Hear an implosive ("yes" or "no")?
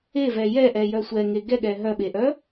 yes